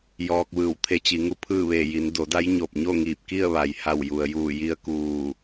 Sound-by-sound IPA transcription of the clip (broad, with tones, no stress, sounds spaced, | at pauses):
j ɔː˧ k̚ ʋ ɯː˧˩ w t̪ʰ e˧˥ t͡ɕ i˩˧ ŋ u˧˥ pʰ ɯː˥˨ ʋ eː˧˩ j i˩˧ n d o˩˧ d a˧˥ j ɲ o˧˩ p̚ ɲ o˥˨ ŋ iː˧˩ p̚ k i˥˨ ə̯ ʋ a˩ j h a˧˩ w j u˩ ə̯ j uː˧˩ j i˧ ə̯ k uː˧˩